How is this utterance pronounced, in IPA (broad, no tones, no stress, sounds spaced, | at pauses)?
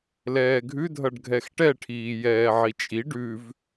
l ɛː ɡʱ ʉ dʱ ʌ ɖ ɡʱ ɛ x ʈ ɛ ʈʰ iː j ɛː ʕ i t͡ʃʼ i ɖ ʉ v